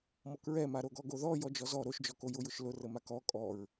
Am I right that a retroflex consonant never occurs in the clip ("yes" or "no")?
yes